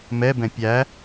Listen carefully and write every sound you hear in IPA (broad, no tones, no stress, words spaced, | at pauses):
mɛbɛ̃ pʲæ